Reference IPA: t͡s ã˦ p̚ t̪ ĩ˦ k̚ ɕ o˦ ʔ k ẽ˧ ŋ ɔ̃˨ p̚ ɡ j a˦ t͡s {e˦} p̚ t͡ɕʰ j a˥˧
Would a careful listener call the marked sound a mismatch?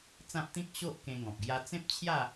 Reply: yes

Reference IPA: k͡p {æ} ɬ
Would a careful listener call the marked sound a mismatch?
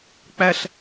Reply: no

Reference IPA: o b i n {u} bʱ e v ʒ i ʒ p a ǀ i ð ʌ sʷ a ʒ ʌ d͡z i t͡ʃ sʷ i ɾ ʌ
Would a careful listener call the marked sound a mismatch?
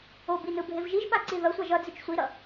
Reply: yes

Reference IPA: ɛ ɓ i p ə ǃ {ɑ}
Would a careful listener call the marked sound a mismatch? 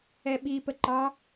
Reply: no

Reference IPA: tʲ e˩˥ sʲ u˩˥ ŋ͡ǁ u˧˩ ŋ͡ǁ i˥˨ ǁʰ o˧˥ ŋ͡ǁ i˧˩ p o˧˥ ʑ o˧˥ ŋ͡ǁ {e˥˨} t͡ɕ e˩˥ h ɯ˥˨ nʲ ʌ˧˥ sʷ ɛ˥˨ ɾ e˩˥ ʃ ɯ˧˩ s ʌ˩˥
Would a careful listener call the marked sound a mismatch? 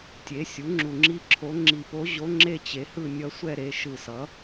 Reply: no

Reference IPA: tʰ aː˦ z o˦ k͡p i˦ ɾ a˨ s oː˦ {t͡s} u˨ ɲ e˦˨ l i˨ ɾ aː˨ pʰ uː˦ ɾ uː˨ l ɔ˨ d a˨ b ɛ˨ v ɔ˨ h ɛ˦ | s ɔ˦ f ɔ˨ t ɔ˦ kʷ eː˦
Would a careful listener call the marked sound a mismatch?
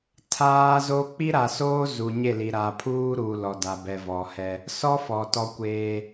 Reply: yes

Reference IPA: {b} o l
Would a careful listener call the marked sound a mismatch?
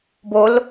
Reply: no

